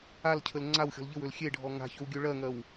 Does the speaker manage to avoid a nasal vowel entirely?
yes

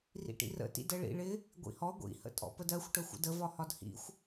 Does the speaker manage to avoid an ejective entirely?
no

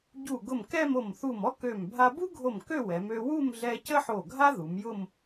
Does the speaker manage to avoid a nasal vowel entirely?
yes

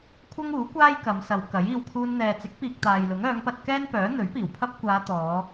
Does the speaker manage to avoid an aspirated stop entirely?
no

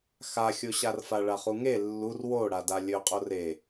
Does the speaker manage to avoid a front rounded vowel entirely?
yes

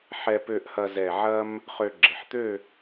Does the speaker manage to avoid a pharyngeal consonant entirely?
no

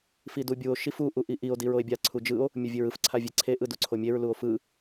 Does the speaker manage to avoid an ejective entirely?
yes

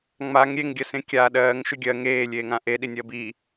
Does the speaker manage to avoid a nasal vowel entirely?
no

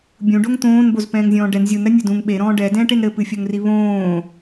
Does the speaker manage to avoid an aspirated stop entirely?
yes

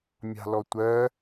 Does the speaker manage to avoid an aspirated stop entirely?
yes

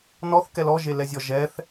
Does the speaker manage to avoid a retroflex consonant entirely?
yes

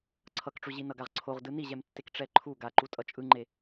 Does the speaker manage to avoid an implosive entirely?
yes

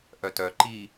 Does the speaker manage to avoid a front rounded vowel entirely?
no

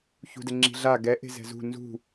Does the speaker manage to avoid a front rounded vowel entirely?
yes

